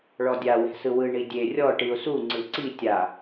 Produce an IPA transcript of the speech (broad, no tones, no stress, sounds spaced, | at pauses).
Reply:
ɭ ɔ dʲ a w ɛ̤ s ɯ w ɯ ɳ i dʲ e rʲ ɔ ʈ i ʊ̯ s u ŋ͡ǀ ɯ ǀ i tʲ a